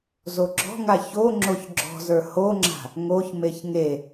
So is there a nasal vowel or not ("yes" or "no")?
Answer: no